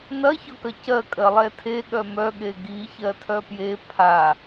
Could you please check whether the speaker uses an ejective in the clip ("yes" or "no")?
yes